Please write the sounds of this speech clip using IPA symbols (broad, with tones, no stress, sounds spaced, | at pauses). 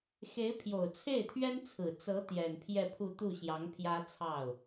x e˧˥ ɪ̯ pʰ j o˨˩ ʊ̯ t͡sʰ e˥˩ ɪ̯ t̪ʰ ɥ ɛ˥ n t͡sʰ ɹ̩˨˩ t͡s ɤ˧˥ t̪ j ɛ˨˩ n pʰ j ɛ˥˧ pʰ u˥˧ t̪ u˥˩ ɕ j ɑ˧˥ ŋ pʰ j ä˥ t͡sʰ ɑ˥˩ ʊ̯